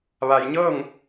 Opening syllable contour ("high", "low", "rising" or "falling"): low